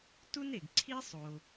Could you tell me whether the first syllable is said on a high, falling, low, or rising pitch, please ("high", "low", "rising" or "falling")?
high